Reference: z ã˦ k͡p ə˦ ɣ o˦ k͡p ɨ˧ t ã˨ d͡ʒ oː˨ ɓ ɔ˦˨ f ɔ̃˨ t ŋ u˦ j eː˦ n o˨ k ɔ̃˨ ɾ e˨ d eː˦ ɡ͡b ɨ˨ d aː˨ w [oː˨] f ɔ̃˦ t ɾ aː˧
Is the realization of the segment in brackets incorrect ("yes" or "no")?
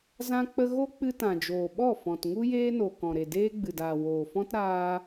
no